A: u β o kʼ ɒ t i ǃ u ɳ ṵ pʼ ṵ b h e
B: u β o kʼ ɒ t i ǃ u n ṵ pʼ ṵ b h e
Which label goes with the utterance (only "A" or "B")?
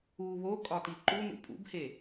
B